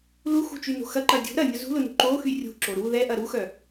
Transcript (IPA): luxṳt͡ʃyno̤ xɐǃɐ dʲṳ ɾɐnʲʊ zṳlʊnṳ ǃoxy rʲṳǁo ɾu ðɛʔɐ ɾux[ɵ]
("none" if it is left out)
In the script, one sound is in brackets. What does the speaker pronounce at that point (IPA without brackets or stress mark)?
œ